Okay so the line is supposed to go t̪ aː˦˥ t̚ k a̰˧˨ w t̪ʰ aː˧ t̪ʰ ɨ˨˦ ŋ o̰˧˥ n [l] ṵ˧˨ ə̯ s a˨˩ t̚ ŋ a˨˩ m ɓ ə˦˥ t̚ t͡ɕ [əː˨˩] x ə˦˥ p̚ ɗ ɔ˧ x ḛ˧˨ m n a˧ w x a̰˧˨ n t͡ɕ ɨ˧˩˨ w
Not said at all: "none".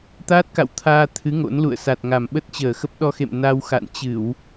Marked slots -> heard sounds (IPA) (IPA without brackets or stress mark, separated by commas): l, əː˨˩